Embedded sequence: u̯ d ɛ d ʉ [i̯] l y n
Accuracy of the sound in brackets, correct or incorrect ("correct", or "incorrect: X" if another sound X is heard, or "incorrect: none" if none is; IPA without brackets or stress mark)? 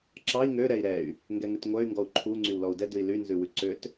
correct